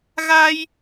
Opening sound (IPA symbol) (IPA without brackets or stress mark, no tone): ɣ